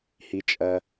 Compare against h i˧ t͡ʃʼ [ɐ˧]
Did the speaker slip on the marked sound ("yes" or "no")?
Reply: no